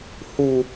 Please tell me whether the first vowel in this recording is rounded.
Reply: yes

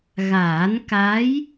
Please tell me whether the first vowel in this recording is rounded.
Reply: no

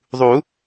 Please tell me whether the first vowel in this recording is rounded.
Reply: yes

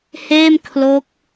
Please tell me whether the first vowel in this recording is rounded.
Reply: no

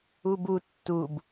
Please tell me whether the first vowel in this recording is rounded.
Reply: yes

